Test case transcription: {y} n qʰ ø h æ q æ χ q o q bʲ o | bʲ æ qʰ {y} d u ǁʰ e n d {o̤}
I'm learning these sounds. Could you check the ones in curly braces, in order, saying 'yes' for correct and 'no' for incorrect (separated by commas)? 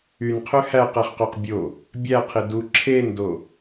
yes, no, no